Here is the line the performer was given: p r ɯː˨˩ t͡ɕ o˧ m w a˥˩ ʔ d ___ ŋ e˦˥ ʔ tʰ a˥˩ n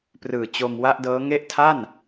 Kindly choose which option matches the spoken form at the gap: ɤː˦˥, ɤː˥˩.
ɤː˦˥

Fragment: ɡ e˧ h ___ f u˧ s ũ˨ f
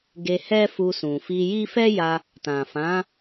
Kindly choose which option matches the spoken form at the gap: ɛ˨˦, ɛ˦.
ɛ˦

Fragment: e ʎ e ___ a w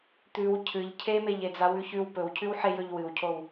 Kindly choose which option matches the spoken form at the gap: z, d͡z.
d͡z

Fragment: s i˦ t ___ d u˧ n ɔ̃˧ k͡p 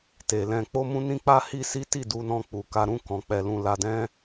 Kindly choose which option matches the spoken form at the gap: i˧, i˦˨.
i˦˨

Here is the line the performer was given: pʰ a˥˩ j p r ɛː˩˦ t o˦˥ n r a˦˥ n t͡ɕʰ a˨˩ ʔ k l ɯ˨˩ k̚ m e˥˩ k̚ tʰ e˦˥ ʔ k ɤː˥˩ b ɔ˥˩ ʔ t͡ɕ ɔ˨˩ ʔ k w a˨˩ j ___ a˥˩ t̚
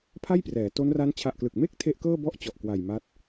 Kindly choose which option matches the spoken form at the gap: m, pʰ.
m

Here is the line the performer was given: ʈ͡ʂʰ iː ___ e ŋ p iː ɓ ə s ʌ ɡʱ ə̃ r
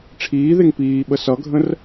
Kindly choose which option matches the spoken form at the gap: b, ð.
ð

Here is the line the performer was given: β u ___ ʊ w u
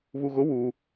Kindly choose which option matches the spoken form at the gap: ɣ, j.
ɣ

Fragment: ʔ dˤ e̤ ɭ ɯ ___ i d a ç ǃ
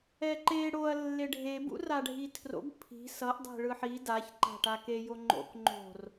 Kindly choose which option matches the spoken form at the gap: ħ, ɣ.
ħ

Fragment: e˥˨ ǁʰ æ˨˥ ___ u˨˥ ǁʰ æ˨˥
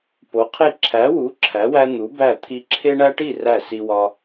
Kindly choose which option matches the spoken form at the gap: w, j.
w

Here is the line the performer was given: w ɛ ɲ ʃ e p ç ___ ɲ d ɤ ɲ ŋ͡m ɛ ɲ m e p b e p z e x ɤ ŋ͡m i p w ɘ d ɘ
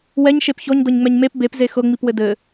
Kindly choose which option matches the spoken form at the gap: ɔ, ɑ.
ɔ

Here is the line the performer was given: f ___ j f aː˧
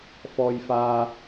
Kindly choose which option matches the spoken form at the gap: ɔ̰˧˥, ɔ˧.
ɔ˧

